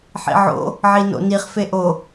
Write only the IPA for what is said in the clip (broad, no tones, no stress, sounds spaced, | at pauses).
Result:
ħ ḭ ʕ o̰ | ʕ i n o̰ n i χ f e ʔ o